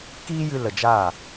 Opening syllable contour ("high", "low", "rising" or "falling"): high